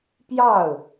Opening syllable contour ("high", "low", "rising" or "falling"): falling